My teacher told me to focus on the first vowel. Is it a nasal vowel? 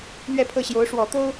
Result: no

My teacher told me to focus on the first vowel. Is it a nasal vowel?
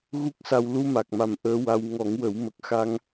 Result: no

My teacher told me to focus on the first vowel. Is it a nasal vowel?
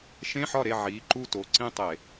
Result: yes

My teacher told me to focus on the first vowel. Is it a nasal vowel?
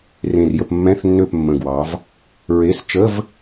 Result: yes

